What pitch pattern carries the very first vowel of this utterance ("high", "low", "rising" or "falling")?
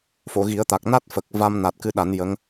low